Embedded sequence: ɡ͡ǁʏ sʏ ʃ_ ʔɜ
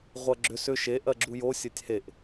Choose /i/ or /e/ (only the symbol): e